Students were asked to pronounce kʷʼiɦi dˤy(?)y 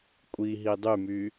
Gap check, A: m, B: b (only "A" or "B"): A